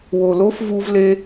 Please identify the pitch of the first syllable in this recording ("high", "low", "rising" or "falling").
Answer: low